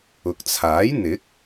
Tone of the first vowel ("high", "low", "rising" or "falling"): low